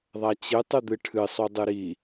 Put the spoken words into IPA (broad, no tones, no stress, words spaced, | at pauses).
ðˤat͡ɕɨ tˤɨd̪ɨʈʰɨ sˤudˤɨɾi